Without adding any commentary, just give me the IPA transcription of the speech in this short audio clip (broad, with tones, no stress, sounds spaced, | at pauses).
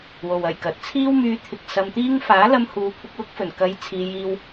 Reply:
w o˨ w ɐ˨˩ j k ɐ˨ t̚ t͡sʰ iː˥ w m yː˧ t̪ʰ ɪ˨ k̚ s ɐ˧ m t̪ iː˥ ŋ f aː˨˥ l ɐ˧ m h uː˨˧ kʷʰ ɪ˧ k̚ w ʊ˥ k̚ f ɵ˨˩ n k ɐ˧ j t͡sʰ iː˧ j iː˧ w